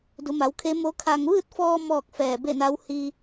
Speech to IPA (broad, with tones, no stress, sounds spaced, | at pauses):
d u˩˧ m a˩˧ w kʰ e˧˥ m o˧˥ kʰ a˧ ŋ ʋ ɯː˥˨ t̚ f ɔː˧ m ɔː˥˨ k̚ f ɛː˧˩ b e˥˨ n a˧˥ w h i˧